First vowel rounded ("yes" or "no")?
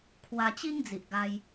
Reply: no